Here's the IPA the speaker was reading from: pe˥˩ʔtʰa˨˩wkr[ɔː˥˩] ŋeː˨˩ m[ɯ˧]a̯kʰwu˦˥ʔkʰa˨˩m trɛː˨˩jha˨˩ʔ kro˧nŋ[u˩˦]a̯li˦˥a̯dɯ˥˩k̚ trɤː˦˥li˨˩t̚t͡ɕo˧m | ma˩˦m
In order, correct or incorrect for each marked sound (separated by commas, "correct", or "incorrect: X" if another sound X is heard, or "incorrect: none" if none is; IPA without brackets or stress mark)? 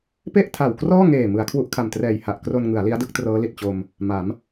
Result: correct, incorrect: ɯ˩˦, incorrect: ɯ˩˦